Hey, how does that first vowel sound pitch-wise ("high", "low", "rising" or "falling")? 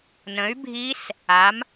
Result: rising